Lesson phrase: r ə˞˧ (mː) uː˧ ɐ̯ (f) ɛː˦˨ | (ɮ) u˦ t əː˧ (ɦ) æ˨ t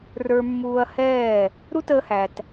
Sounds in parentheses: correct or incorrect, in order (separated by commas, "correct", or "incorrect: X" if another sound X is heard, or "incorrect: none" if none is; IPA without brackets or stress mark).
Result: correct, incorrect: h, incorrect: ɾ, incorrect: h